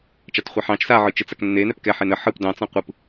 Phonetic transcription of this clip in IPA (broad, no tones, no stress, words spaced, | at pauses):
t͡ʃɑtχʷɛħɑ̃t͡ʃ saʕɯ t͡ʃɯt͡saknːe nɛpkɛ ħenə ħɯp dɑ̃t͡sɑ̃ qʷɯp